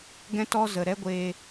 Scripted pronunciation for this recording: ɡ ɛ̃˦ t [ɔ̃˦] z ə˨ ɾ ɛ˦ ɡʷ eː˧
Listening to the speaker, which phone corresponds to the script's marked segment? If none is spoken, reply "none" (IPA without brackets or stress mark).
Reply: ɔ˦